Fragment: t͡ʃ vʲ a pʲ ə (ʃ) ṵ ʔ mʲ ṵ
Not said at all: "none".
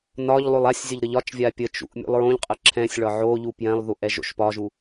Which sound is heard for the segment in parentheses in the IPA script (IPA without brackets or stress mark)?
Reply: t͡ʃ